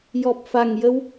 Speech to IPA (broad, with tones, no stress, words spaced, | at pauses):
jɔ˨˩p̚fa˨˩ŋjə˧w